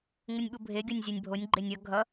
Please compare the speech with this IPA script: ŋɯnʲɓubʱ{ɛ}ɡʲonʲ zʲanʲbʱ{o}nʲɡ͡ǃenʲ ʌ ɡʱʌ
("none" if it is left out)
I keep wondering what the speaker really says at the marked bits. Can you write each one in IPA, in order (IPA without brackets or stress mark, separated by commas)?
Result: e, o